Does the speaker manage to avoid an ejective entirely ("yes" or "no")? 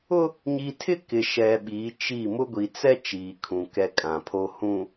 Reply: no